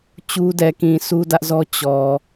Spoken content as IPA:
t͡ɕu˦dɛ˨kĩ˨ su˦dä˦ʔzɔ˦ t͡ɕɔ˨

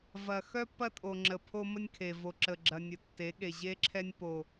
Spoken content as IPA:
vɐ˨ xœ˦pːɐ˦tʼo˨ ŋ͡ǁə˨pʰo˦mə˦nʲkʰe˨ vo˨ǁə˨ɡ͡ǁɐ˨nʲə˨ tːe˨˦ɠe˨ʑe˦ǁʰɛ˦nʲ po˦

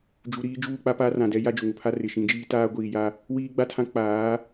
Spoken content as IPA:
d͡ʒu˨ ɾiː˦d͡ʒuː˦˨ k͡pa˦paː˦rã˨dɛ˦ ja˦d͡ʒʊ˨ ŋʊ˨pʰa˦ rɪ˨ʃĩ˨˦d͡ʒiː˦ taː˦ɡʷiː˨ja˦ | wiː˦ɡ͡ba˦tʰã˦ k͡paː˨˦

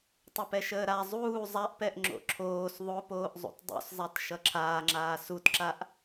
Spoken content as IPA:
tˤəpɛʃəːɾa zˤuː zˤaʔpɛʔ ŋ͡ǁo̰ǁʰoːs ðˤopoːʔzˤṵt dˤṵszˤat ʃʌǁʰaːŋ͡ǁaː sutǁaʔ

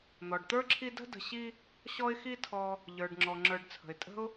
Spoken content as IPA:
n̪ɔ˩ɖt̪ə˞˥ǁʰi˦ də̤˥də̤˨ɕi˦ | ɕɔ˦ɪ̯xi˦tʰɔ˨ | ʎə˞˩ɖŋ͡ǁɔ˩ ŋ͡ǁə˞˨ɖt͡sʰə̤˩ɪ̯ tʼə̤˥ʊ̯

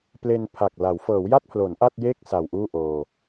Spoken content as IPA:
ple˧npʰa˨˩k̚la˩˦w fɤː˩˦wja˥˩t̚pʰlo˩˦n ʔa˥˩t̚je˥˩k̚ sa˨˩wʔuː˥˩ ʔoː˧

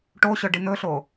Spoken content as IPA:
ʈoɕœɖi n̪ɵɬo

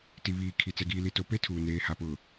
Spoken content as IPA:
ti˨βiː˨ kʰi˨ t͡sɛ˨ɡiː˨li˨to˨ pe˦tʰuː˨neː˨ ha˨pʊ˨

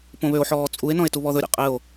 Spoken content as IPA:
põβøo̯ħɔː t͡sʼue̯nɔ̃e̯ tuβɔðɵɾʲɛ̰ qʼɘo̯

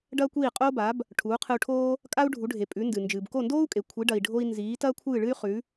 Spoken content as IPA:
ɖɐː˥kʷiː˥˩qʼoː˥ba˩˥b | ʈʰuː˩˥qʰɨ˧u̯ʈʰoː˥ | kʼa˥u̯ɖʱu˩˥ɖʱe˩ pʼʉ˩˥ndɨ˩ nd͡ʒɨː˩bko˥˩ndoː˥u̯kʼe˩ kʷʰi˩˥ɖɐ˩i̯ɖʱo˧i̯ nziː˩˥ tɐː˥kʷʰɨː˥˩ɭɨ˥y̯ χʉ˩˥

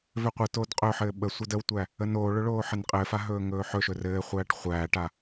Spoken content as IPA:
vøqʷɘtoːd qʼɵħɘː ɓə sʷɘdəwtʷæ | ənoːɭɵ ɭoːħɘnqʼɘːfa ɦɵːŋɵːħɵʃɵ rɘːχʷæːʈ χʷæːʈa

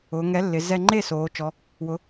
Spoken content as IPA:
ʊː˩˧ŋɛ˨˥lːɪ˩˧ zɛ˧ŋ͡ǃe˥˨soː˩˧ t͡ʃɔ˨˥ | wʊ˨˥

